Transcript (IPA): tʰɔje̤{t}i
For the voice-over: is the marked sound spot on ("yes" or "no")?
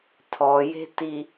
yes